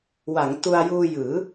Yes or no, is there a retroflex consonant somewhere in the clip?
no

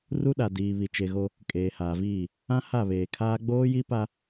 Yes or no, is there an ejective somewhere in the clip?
yes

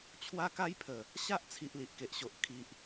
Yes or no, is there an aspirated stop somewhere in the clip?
yes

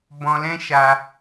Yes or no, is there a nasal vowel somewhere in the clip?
yes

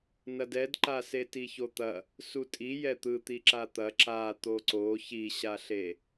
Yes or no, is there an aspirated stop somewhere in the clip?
no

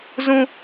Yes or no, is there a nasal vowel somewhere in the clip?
yes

